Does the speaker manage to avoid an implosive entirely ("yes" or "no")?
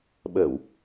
no